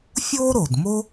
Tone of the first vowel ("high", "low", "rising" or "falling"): high